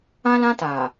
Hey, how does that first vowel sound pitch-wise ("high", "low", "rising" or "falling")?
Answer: high